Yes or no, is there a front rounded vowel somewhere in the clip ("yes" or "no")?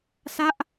no